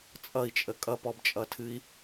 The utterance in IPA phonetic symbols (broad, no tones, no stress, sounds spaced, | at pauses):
t͡sʼ ʌ i̯ t͡ʃʼ ə kʼ ʌ p ɔ b t͡ʃʼ ʌ tʰ ɨ i̯